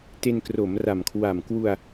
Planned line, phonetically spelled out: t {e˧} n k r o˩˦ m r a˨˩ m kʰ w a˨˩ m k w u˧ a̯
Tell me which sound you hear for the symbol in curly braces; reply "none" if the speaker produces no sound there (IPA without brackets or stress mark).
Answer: e˧